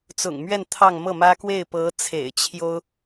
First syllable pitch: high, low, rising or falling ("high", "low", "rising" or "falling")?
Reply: low